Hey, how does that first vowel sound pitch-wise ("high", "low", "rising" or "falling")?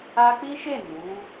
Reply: high